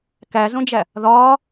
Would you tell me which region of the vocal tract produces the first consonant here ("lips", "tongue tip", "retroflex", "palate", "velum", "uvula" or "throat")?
velum